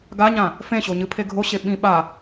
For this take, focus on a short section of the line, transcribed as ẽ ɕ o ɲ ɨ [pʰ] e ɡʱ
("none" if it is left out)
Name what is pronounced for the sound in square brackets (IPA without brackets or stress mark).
pʰ